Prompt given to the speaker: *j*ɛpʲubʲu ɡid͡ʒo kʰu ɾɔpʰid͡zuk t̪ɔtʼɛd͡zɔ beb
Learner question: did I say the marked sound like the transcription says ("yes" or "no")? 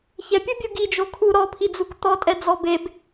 no